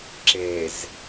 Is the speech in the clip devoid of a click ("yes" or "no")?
no